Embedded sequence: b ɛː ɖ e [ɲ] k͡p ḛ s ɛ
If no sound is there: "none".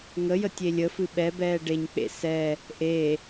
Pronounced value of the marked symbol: ɲ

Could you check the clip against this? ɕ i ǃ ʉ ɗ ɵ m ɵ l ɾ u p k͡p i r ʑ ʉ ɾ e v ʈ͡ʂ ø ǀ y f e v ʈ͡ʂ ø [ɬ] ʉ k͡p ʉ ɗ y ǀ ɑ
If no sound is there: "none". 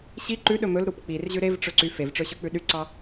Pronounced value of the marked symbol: ɕ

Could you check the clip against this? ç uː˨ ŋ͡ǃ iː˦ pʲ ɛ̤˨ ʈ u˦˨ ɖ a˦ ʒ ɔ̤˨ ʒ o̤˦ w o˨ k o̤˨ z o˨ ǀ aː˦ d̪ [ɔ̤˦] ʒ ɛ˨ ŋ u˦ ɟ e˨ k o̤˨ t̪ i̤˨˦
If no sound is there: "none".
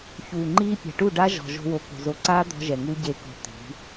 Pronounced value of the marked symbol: ɔ̤˦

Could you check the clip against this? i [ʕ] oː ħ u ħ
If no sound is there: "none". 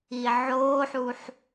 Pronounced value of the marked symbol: ʕ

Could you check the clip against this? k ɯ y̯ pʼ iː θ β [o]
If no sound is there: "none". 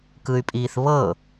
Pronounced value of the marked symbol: ɤ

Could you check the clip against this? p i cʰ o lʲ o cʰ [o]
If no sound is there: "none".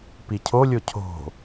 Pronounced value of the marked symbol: o̤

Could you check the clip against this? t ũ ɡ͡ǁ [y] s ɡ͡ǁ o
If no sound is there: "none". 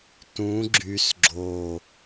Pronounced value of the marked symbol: y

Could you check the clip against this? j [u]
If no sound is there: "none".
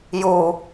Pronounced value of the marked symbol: u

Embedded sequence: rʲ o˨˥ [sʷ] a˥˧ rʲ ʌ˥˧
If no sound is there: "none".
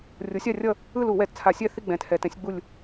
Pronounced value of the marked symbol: sʲ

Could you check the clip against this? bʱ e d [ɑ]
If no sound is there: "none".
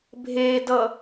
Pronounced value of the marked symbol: ʌ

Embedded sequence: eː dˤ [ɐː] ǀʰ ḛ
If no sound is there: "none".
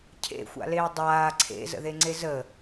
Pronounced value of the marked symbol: aː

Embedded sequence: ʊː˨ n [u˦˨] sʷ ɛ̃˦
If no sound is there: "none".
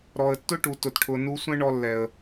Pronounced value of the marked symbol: u˧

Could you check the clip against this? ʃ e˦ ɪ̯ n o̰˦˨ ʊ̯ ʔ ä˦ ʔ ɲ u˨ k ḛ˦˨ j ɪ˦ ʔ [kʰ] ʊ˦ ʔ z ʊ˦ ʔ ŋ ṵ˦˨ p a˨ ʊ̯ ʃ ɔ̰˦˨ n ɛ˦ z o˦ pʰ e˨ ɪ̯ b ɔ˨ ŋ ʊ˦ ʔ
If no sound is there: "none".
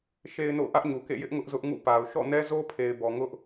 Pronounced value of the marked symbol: ŋ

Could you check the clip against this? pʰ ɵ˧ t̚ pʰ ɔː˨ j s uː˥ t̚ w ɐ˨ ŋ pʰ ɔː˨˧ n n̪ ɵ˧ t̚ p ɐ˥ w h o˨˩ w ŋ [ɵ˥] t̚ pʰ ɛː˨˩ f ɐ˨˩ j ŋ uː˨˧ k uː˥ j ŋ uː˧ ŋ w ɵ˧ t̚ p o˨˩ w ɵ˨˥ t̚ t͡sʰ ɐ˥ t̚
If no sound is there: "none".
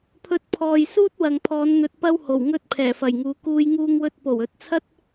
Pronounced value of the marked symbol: ɵ˥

